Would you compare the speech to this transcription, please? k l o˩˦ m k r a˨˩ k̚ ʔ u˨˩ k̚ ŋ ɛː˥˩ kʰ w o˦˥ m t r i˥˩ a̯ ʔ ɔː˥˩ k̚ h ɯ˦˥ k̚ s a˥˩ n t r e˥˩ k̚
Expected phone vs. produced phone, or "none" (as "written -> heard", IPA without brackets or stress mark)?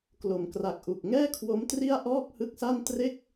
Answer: none